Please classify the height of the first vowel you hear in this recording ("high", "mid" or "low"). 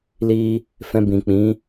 high